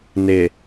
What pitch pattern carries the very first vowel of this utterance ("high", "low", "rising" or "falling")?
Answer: low